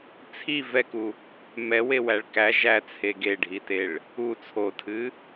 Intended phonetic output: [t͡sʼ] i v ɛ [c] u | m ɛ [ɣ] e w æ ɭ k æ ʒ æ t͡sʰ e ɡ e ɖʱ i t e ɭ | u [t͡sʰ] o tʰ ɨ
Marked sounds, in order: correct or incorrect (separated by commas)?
incorrect, incorrect, incorrect, correct